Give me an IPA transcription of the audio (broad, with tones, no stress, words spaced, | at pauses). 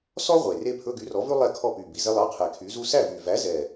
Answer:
sɔ˥ ʁʷe˨˩re˥ pʰɵ˧˥˧ɡy˨˥rɔ˨˥vʉ˥ lˠɛ˥˨kʰɔ˥˨py˨˩ bi˨˩ze˥lˠɑ˧˥˧qʰɛ˨˩ kʰy˨˥zu˥ sæ˥˨vy˨˩ væ˨˥zɛ˨˩